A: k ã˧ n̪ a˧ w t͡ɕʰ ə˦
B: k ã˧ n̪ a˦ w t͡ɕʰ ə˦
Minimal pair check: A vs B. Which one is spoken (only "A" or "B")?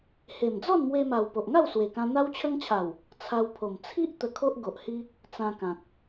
B